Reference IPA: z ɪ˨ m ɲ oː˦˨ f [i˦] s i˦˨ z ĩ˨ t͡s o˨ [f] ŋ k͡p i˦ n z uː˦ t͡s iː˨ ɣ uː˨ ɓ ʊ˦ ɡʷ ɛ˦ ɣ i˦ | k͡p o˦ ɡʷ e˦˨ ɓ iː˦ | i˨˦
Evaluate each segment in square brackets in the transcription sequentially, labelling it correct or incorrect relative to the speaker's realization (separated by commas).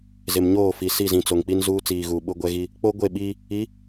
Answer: incorrect, incorrect